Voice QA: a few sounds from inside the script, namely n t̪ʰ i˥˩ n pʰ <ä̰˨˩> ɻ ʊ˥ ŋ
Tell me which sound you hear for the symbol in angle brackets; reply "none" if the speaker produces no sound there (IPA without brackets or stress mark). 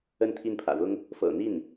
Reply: ä̰˨˩